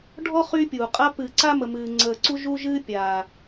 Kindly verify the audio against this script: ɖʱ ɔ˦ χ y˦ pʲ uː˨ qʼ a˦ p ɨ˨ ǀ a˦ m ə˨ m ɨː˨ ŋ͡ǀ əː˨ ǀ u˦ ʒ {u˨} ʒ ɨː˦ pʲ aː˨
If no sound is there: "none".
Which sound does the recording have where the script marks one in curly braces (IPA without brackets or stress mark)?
u˦